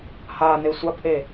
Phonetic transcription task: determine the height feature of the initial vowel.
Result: low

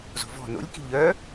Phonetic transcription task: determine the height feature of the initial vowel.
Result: mid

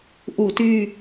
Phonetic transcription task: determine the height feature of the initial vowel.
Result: high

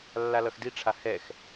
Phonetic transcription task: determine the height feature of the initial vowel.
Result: low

